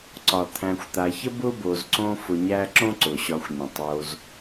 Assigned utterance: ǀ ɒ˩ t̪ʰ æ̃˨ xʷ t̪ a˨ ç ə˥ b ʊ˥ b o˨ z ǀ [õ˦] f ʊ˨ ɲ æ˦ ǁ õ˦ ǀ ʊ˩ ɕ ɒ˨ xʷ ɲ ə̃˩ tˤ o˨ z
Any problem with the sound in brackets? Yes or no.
no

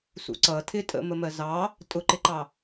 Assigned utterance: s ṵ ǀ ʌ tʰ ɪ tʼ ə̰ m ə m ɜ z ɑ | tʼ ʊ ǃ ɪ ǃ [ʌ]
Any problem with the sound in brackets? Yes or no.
yes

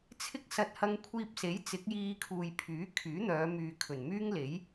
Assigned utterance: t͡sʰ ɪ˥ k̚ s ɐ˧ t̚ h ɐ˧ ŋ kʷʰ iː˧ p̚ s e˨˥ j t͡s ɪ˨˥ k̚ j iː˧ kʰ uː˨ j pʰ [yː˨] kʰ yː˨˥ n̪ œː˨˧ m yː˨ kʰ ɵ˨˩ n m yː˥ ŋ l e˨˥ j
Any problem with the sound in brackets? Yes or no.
yes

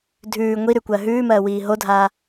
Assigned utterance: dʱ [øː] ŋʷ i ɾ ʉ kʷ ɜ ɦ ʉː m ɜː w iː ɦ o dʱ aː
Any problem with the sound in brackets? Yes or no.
yes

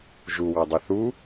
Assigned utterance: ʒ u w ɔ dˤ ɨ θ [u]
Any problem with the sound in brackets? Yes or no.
no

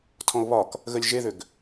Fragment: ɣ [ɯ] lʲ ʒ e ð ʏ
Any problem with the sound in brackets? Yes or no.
yes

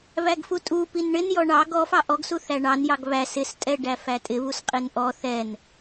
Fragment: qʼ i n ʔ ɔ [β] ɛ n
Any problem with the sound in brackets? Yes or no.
yes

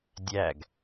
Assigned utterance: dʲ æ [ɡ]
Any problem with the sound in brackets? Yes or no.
no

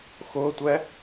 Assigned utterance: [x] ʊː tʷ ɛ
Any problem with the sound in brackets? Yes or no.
no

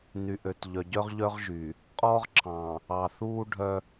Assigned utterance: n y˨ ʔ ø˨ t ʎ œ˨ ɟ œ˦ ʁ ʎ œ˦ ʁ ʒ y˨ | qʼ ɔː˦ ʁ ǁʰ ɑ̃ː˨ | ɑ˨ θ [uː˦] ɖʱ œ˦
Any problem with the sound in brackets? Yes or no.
no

